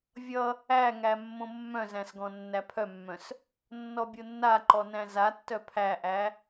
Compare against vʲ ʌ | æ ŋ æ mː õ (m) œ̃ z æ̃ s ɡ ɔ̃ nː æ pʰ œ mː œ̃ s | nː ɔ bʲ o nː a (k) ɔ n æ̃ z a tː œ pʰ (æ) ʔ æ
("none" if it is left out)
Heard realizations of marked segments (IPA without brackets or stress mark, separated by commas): mː, ǃ, æ